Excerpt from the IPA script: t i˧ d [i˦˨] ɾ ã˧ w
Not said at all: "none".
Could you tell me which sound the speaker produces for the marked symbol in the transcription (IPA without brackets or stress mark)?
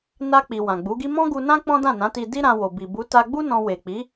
i˦